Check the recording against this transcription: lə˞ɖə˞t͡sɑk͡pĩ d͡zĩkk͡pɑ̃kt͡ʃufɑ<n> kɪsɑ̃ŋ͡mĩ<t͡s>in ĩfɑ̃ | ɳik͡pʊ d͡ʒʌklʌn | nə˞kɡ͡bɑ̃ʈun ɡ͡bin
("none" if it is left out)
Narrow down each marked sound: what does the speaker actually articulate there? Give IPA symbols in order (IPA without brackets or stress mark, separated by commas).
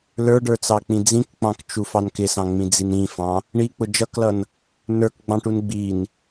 n, d͡z